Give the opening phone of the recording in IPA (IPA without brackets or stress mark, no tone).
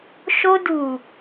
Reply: ʃ